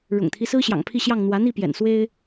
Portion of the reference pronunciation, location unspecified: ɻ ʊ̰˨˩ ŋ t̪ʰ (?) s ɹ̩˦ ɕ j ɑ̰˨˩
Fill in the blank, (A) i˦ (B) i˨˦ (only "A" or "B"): A